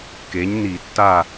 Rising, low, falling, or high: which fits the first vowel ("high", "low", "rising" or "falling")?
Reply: rising